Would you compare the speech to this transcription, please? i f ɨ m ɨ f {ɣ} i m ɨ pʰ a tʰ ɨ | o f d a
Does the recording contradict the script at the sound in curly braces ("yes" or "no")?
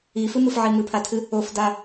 yes